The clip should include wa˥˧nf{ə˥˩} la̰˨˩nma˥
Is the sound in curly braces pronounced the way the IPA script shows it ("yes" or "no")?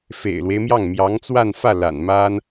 no